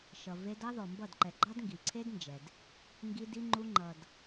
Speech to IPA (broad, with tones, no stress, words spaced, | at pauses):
ʃʌ˨ve˧d ɑ˦ðɔ˨mbʌ˦˨dǃɛ˨ ɡ͡ǃɑ˦dŋɡi˨ǀʰe˦dnd͡ʒɛ˨d | ŋɡi˧d i˧ŋ͡ǃu˧ŋ͡ǃʌ˨d